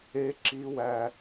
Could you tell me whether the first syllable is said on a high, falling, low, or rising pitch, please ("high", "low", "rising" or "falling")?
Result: high